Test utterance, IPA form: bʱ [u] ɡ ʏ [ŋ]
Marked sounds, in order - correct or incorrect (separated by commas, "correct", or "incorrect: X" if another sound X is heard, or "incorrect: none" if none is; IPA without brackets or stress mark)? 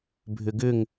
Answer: incorrect: ʏ, correct